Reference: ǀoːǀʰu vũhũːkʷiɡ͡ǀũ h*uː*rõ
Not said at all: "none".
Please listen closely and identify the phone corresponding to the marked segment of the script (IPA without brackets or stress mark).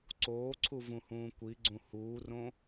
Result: uː